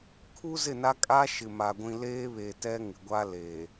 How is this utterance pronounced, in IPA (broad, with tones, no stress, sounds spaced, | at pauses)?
kʰ u˦ z ɪ˦˨ n a˦ kʼ a˦ ʃ ɪ˨ m a˨ ɡʷ ĩ˨ l eː˦ β e˨ t ɛ˦ ŋ ɪ˨ ɡʷ a˦ l eː˨